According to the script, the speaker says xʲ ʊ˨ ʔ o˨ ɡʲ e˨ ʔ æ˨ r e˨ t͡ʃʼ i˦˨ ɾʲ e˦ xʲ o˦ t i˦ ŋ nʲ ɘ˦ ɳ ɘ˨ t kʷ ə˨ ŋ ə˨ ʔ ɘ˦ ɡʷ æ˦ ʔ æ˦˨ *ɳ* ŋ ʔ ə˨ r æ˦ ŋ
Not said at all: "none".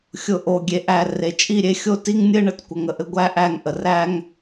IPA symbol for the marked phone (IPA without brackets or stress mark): none